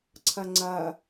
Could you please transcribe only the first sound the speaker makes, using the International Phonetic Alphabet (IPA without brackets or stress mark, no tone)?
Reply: ǀʰ